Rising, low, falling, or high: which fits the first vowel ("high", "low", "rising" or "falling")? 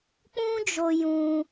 high